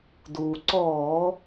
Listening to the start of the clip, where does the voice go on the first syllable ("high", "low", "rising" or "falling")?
low